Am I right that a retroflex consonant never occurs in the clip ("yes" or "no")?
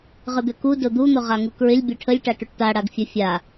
no